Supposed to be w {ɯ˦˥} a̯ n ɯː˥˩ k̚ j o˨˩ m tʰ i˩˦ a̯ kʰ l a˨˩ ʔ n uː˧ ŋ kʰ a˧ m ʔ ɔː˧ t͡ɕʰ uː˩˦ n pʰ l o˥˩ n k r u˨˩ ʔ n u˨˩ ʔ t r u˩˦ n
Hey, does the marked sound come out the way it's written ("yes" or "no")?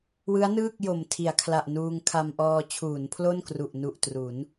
yes